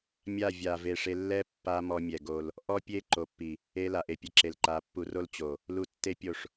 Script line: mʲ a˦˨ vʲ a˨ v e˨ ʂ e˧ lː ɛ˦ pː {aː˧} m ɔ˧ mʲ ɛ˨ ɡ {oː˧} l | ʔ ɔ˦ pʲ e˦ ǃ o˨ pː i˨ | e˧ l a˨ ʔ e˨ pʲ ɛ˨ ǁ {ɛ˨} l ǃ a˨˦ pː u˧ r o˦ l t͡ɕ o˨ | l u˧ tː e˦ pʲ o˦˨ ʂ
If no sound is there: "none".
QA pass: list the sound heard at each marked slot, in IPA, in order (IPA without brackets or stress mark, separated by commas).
a˧, o˧, e˨